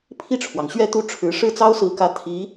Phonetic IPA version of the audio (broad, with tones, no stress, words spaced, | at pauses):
pʰi˥˩ʈ͡ʂʰwɑ˩ŋ ɕɥɛ˥˧t̪u˥˩ʈ͡ʂʰɻ̩˧˥ ʂɻ̩˥˩t͡sɑ˥ʊ̯sɹ̩˧˥kä˧˥ t̪ʰi˧˥